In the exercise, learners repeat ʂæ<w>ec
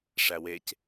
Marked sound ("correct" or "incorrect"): correct